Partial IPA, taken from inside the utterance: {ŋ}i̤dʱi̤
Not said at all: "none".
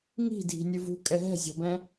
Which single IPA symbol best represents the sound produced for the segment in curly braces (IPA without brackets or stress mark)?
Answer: ŋ